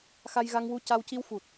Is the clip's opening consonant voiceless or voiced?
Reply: voiceless